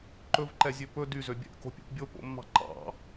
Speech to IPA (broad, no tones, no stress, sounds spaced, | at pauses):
ǃ ɵ v ǃ ɛ zʲ ø p ɵ d y z ø bʲ ɛ̰ ʔ k o̤ pʲ o̰ p bʲ o p o̰ mː ɑ̤ ǃ ɑ̰